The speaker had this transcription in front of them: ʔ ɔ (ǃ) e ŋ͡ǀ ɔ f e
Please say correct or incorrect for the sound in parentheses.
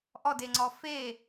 incorrect